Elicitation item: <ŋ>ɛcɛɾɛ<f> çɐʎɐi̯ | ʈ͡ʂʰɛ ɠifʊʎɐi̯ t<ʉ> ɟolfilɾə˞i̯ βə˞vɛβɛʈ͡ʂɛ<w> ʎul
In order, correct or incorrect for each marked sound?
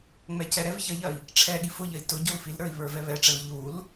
incorrect, incorrect, incorrect, incorrect

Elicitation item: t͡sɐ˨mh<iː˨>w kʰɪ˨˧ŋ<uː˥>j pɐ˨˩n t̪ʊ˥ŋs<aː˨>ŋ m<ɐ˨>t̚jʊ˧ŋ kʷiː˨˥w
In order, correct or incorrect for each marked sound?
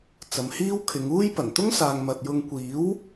incorrect, correct, correct, correct

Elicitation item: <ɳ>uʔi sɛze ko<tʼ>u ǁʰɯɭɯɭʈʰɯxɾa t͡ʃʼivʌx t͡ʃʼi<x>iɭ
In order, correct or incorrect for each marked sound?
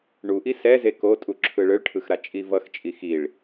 correct, correct, correct

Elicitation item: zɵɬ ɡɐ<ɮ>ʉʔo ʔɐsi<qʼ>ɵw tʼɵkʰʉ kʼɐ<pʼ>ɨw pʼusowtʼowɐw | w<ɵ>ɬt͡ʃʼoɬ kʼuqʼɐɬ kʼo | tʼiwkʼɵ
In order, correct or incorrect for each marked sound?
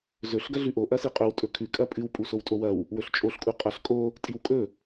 correct, correct, correct, correct

